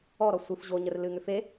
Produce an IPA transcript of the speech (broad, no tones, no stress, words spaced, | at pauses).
ɔɾɔ sʷɨf ʑoɲər lɨŋʏ fe